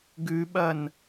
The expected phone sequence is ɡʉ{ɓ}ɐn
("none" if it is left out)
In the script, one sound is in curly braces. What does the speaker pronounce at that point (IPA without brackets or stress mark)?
ɓ